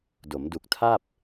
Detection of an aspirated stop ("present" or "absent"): present